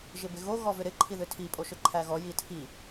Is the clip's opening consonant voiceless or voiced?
voiced